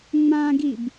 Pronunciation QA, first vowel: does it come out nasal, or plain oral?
nasal